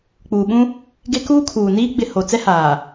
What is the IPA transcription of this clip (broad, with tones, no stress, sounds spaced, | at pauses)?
k͡p uː˨ ɓ ũ˦ | ɡ e˦ k uː˦ kʰ uː˨ n iː˦ ɡ͡b ɪ˨ h o˨ t͡s ɛ˦ h aː˨